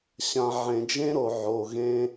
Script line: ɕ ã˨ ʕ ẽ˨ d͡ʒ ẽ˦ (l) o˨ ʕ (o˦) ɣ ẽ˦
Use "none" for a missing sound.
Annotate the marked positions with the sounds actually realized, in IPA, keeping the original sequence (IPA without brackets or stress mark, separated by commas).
ɾ, o˨